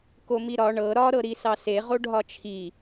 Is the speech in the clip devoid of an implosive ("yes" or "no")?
yes